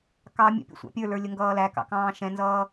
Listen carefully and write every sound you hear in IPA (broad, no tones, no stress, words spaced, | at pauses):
kɑ mʲə̰pʲə̰ sʷɑ̰pʲə˞lə˞ lʲəŋɡʌːlækɑ̰ kɑ̃ːʃɛ̃nzʌː